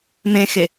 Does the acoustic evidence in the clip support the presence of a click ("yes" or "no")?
no